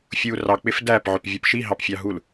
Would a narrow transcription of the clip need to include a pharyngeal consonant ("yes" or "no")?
yes